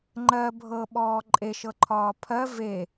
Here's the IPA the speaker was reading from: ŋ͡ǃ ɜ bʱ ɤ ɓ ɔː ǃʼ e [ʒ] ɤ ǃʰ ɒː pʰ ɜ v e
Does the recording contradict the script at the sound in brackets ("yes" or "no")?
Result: yes